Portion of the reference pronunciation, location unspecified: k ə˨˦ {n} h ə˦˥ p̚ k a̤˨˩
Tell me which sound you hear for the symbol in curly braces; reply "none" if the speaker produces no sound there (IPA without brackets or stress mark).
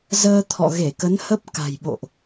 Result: n